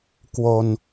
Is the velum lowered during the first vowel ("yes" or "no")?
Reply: no